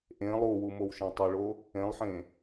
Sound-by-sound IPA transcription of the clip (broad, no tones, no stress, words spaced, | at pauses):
ʔẽ lˠuwu mowʃɛ̃tˤɘɭo | ẽlˠħẽ